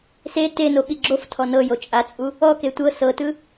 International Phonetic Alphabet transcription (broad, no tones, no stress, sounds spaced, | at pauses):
s e t e n o ɓ i ɡ͡ǁ o f tʰ ɔ n ɤ j o t͡ʃʼ a t͡sʼ u | ɔ k e tʷ ɤ s ɤ t ɯ